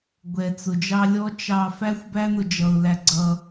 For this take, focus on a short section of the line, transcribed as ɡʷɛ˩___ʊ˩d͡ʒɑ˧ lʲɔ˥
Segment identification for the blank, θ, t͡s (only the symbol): t͡s